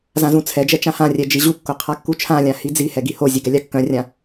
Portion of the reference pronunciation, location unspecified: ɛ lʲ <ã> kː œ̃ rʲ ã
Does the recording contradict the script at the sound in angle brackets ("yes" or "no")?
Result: yes